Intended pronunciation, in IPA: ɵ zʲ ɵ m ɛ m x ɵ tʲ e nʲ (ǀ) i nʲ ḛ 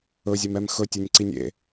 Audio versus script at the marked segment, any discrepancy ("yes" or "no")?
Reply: no